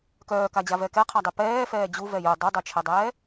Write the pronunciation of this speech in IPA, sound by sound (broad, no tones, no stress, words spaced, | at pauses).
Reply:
kœːkad͡ʑavɛ kɛqʰadˤe pɛːfɛː d͡ʑuvɛ jo dˤedˤœt͡ʃʰɛdˤɛː